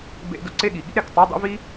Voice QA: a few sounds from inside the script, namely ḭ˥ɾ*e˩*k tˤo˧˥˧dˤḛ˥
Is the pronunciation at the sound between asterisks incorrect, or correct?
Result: correct